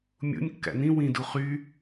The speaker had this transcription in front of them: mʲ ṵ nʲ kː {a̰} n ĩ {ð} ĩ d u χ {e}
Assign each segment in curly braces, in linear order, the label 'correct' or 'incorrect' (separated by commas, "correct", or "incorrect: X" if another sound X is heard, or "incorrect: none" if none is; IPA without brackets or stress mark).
incorrect: æ̰, incorrect: w, incorrect: y